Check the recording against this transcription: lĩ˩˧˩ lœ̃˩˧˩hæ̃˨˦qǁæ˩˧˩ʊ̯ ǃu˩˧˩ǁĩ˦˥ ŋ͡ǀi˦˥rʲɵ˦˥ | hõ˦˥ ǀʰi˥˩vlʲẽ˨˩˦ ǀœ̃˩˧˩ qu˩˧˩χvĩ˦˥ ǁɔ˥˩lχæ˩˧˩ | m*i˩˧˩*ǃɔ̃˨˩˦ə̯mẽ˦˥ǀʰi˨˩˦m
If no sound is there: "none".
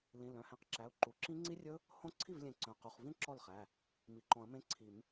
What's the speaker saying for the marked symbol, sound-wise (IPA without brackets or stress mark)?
i˩˧˩